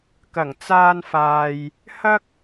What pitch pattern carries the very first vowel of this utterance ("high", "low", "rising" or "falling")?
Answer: low